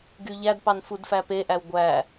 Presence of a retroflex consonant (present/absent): absent